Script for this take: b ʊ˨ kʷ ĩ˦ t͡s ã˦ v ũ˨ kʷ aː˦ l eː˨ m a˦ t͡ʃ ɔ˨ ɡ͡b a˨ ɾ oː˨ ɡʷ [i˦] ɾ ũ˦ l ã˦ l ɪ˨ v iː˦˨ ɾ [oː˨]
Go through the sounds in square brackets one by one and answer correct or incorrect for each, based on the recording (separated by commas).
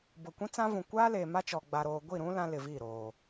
incorrect, correct